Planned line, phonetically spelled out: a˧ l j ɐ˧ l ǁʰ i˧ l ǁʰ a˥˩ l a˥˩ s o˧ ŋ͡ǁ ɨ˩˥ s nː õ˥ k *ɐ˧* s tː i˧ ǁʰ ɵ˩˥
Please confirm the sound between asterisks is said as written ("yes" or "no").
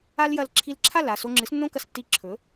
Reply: yes